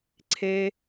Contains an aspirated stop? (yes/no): yes